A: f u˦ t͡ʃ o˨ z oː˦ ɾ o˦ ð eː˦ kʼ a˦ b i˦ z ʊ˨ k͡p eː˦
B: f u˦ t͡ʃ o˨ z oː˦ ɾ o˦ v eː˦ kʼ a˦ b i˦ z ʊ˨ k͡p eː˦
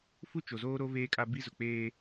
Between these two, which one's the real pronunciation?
B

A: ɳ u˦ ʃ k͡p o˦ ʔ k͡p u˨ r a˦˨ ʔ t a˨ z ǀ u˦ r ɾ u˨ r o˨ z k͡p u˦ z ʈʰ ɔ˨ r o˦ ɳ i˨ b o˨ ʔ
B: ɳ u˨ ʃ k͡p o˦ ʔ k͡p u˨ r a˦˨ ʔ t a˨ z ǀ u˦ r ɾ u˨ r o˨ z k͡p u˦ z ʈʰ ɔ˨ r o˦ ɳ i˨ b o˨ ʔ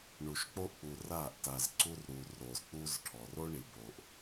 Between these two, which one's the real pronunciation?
B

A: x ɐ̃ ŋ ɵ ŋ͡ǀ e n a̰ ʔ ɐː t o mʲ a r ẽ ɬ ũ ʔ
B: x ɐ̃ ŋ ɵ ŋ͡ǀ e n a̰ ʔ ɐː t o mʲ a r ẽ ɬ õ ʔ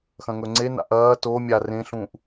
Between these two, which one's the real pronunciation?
A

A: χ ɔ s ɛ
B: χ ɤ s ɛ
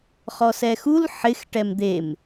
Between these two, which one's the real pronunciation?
A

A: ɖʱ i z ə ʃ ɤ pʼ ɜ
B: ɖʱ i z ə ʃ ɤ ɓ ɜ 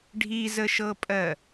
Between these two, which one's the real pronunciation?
A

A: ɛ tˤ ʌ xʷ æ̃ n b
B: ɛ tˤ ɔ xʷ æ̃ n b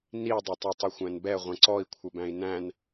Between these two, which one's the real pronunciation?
A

